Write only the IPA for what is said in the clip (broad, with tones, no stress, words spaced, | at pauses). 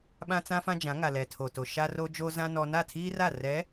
ɓã˦t͡sã˦fã˦d͡ʒã˨˦ ŋa˨ lɛ˨tʰo˨to˨ ʃa˦ro˦d͡ʒo˦zã˦ nɔ˦ na˦˨tʰiː˦ra˦˨ rɛ˨˦